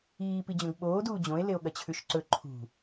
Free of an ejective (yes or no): yes